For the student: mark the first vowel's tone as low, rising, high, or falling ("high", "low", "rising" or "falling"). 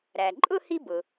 low